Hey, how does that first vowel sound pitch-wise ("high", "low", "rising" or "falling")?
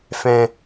low